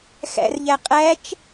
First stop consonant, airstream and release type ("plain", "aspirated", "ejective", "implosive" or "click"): ejective